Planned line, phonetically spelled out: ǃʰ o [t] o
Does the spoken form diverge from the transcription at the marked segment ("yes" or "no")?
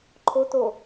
no